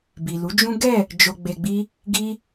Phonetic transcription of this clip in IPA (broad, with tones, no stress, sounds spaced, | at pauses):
b i˨ l u˨˦ d͡ʒ ũ˦ ɡ ɛ˦˨ | d͡ʒ o˨ ɡ͡b e˨ ɡ͡b i˧ | ɡ i˦